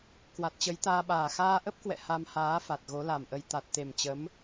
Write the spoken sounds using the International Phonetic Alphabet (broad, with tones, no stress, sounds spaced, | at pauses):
k w a˨˩ t̚ t͡ɕ ə˨˦ j t̪ aː˧ ɓ aː˨˩ x aː˧ ʔ ə˦˥ p̚ k w ɛ̰˧˨ h a˧ m h aː˨˦ f a˨˩ t̚ ɣ o˨˦ l a˨˩ m ʔ ə˧ j t̪ a˨˩ t̚ t̪ e˨˩ m t͡ɕ ə˨˦ m